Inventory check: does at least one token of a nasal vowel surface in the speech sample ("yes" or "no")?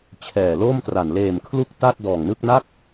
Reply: no